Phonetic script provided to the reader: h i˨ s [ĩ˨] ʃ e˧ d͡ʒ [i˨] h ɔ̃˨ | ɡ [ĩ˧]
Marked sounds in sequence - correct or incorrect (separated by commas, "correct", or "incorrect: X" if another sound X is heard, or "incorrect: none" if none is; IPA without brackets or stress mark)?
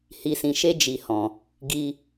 correct, correct, incorrect: i˧